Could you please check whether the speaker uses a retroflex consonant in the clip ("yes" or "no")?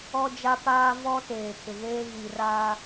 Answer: no